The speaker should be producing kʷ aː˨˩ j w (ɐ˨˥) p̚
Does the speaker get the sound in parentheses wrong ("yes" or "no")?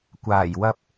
yes